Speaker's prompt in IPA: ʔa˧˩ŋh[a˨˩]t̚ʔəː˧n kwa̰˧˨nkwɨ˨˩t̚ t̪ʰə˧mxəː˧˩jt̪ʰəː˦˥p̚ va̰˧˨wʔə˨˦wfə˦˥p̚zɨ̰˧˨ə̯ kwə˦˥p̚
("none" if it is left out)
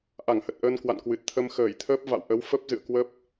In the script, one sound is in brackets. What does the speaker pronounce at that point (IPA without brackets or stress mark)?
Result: ə˨˩